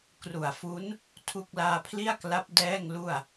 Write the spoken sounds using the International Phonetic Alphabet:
k r u˨˩ a̯ f u˦˥ n | tʰ u˥˩ k̚ l aː˧ pʰ l i˥˩ a̯ k l a˦˥ p̚ d ɛː˥˩ ŋ l u˥˩ a̯

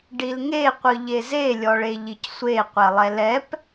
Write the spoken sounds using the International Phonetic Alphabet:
ɖ i l ŋ e qʷ ɯ ʎ e z e lʲ ɔ ɭ e ʎ i c sʷ e qʷ ɛ lˠ ɛ l ɛ p

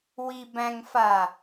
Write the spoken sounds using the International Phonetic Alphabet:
w i b æ̃ ŋ f a

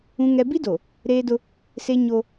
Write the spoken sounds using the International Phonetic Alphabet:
ũ˦ ŋ ɛ˦ b i˦ d o˨ | ɾ eː˦ d ʊ˦ | s e˦ ɲ o˦

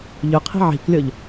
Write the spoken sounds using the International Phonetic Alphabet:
ʎ ɵ qʰ i̤ ʕ i̤ k lʲ ɔ ʎ

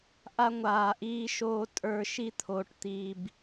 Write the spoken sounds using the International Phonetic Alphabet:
ʔ a˧ ŋʷ aː˨ ʔ iː˧ ʃ oː˧ tʼ ə˞˧ ʃ i˦ t̪ʰ o˧ ʈ t̪ iː˧ b

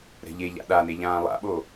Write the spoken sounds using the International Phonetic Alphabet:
ɾ ɛ̤ ʎ e ʎ a̰ ɗ a n e ʎ ãː lˠ a̰ ɓ o

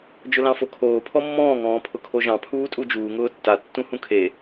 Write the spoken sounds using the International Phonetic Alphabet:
d͡ʒ ʊ l ɑ̃ f o kʰ oː pʰ ɔ mː ɔ̃ː ŋ ɔ̃ː pʰ ʊ kʰ o ʒ ɑ̃ pʰ uː tʼ u d͡ʒ uː ŋ ʊː tː a tː ũ h ũ kʰ e

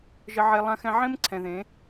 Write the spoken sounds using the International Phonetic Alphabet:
ʒ ə˧ ʕ e˧ lˠ ã˧ x ɛ̃˧ ʕ ẽ˦ m ǀʰ ɛ̃˨ ð ẽ˨˦

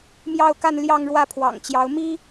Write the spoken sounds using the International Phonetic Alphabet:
m j ɑ˥˧ ʊ̯ k a˥˧ n l j ɑ˥˧ ŋ ɻ w ä˥˩ pʰ w ɑ̰˨˩ ŋ t͡ɕ j ɑ˧˥ ʊ̯ m i˥

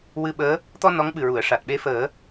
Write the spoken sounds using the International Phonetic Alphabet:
w ɨ˧ ɓ əː˧˥ | t̪ ɔ˧ n ɔ˧˥ ŋ ɓ ɨ˨˩ ɹ u˨˩˨ ə̯ ʂ a˨˩ t̚ ɓ e˧˥ f əː˨˩˦

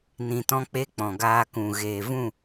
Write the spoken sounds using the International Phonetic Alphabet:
n ĩ˧ t ɔ̃˦ k͡p e˦ k͡p ɔ̃˨ ɡ aː˧ k ũ˨ ɣ eː˨ v ũ˦˨

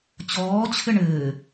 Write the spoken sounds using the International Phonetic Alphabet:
t͡ɕ ɔː t͡ɕʰ ɘ ɳ ɘː

